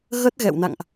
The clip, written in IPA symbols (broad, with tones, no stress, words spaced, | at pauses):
ɣə˦˥t̚ɣɛ̰˧˨wna̰˧˨ŋʔ